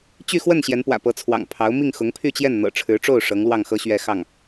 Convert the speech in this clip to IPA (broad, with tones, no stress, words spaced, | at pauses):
t͡ɕy˥˧xwə˥˩n ɕjɛ˧˥npwä̰˨˩pɤ˧˥t͡sʰwɑ̰˨˩ŋ pʰɑ˧˥ʊ̯ mi˥˩ŋxʊ˧˥ŋpʰy˥˧t͡ɕjɛ˥˩n n̪ɤ̰˨˩ʈ͡ʂʰɻ̩˧˥ʈ͡ʂo˥˩ʊ̯ ʂɤ˧˥ŋlwɑ˥˩ŋxɤ˥ ɕɥɛ˥˧ xɑ˥˩ŋ